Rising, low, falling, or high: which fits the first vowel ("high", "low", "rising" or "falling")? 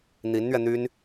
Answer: rising